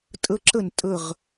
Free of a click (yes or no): no